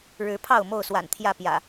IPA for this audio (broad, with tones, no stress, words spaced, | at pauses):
ɻɻ̩˨˦ pʰɑ˥˨ʊ̯mo˥˨ʊ̯swa̰˨˩n t̪ʰjä˥˨pjä̰˨˩